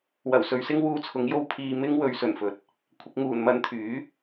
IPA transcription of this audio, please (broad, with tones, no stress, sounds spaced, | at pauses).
w ɐ˨˩ w s ɵ˨ ɥ s ɪ˥ ŋ w uː˧ t͡sʰ ʊ˨˥ ŋ j o˧ w pʰ iː˧ m ɪ˥ ŋ w ɵ˨˧ ɥ s ɵ˨˩ n f ɵ˨˥ t̚ | kʷʰ ɪ˨ k̚ ŋ uː˨˩ n m ɐ˧ n t̪ʰ yː˨˥